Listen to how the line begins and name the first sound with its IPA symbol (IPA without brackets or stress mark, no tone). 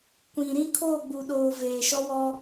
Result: kʷ